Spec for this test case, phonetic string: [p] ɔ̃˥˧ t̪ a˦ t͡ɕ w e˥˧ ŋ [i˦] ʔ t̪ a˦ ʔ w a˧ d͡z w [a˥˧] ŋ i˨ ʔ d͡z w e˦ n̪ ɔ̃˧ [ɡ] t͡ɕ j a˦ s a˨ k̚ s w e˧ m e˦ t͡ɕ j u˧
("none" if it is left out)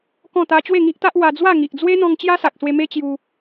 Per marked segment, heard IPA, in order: k, i˦, a˥˧, ŋ

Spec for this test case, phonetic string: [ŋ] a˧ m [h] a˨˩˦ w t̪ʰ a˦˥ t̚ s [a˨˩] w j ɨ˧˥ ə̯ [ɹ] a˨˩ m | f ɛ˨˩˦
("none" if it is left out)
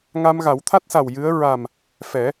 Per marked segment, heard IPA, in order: ŋ, ɣ, a˨˩, ɹ

